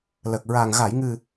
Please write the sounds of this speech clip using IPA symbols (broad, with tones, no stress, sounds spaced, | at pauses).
l əː˨˩ k̚ ɹ aː˨˩ ŋ ɣ a˨˩˨ j ŋ ɨ˨˩